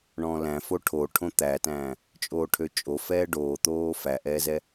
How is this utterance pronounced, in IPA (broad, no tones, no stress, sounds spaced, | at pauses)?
ɳ ɔ̃ː l æ̃ f o ʈʰ o ʈʰ õ t̪ æ t æ̃ː | t͡ʃʼ oː ʈʰ ø t͡ʃʼ o f ɛː ɖ oː t̪ oː f æ ʔ ɛː z ɛ